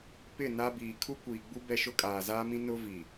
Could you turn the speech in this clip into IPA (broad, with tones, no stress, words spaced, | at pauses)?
pɪ˦˨na˦ biː˨ kʰu˦kʷiː˨ɡ͡bu˦ bɛ˦ʃʊ˦ kʼaː˨zaː˦mĩ˦ nʊ˦vi˨